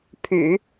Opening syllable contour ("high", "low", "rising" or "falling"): low